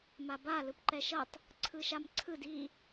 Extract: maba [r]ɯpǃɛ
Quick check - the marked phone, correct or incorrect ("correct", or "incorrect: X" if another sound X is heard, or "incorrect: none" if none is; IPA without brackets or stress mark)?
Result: incorrect: l